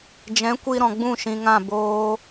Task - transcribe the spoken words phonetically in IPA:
d͡ʒɛ̃˨˦kʷi˧ ɾɔ̃˨ɡ͡bũ˦˨ ʃĩ˨ŋã˦˨ boː˧

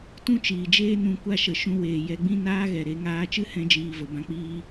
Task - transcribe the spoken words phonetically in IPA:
tũ˦t͡ʃiː˨d͡ʒeː˦ nũ˧kʷa˦˨ʃə˨ ʃũ˧weː˨jɛ˧ɡ͡bĩ˦ naː˦ɣɛ˨ɾe˧ ŋaː˧t͡ʃɨ˦hɛ̃˧ d͡ʒiː˨və˨bã˧k͡piː˧

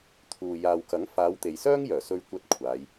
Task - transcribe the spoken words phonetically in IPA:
t̪ʰuː˨ jaː˨wkɐ˨˥ŋ faː˨˧wt̪e˨jsœː˥ŋjœː˨˩ sɵ˧ɥ kʷɐ˥t̚kʷʰaː˨˧j

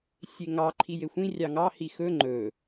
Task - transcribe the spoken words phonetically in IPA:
sʲeŋɑ ǃʰijexʷĩ rʲɑŋɑ hixɵ ŋ͡ǃɵ

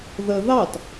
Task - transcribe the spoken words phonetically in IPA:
ðə ðɑt

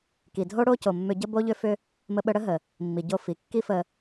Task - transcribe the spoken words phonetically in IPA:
ki˩dʱo˥ ɽo˥co˩mːʏ˧ ɟə˥bo˥ʎʏ˥fʏ˥ | mə˧ɓə˧ɽə˥ ɦə˩ | mːi˩ɟo˧ fi˩kːi˥fə˧

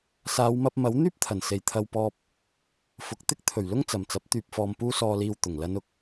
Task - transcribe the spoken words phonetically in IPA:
saː˨˧wmɐ˧p̚mɐ˨˥w n̪yː˥p̚t̪ʰɐ˨˩nse˨j t̪ʰɐ˧wpɔː˧p̚ | fʊ˨k̚t̪ɪ˥k̚ t̪ʰɵ˨˩ɥ lʊ˥ŋt͡sɐ˨mt͡sɐ˨˥p̚ t̪yː˨p̚fɔː˨m puː˥sɔː˧liː˧w t̪ʊ˨˩ŋlɐ˨˧nʊ˨˥k̚

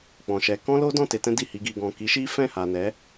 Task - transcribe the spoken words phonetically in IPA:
k͡pɔ̃˨ʃɛ˨˦ kɔ̃˦lo˦dɔ̃˦˨ te˧tɛ̃˦di˦˨ hi˧ ɡi˨ɡɔ̃˨ki˨˦ʃi˦ fɛ̃˦˨ha˨nɛ˨˦

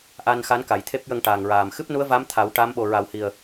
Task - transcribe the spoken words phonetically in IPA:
ʔa˧n xa˧˥nka˨˩˨jt̪ʰe˦˥p̚jə˧ŋ ʈa˨˩ŋɹaː˨˩m xɨ˦˥p̚nu˧˥ə̯va˧˥m t̪ʰa˨˩˦wʈa˧˥m ɓo˨˩ɹa˨˩whi˨˩ə̯

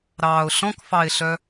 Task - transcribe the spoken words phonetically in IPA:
ɾɑːʊ̯ɬɔ̃kfɑɪ̯ɬœ

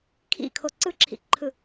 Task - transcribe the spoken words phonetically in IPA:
kʰḭkʰo ǀɯǁʰḭǃʰɯ

